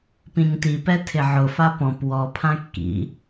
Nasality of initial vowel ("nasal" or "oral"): nasal